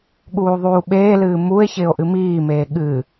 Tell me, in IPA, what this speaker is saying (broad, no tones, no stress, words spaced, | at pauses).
ɠuːðˤuːɓeːlɨː mue̯ çɪːo̯ʔɨmiːmeː ɠɨ